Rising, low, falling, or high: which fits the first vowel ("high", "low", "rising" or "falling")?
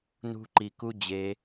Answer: high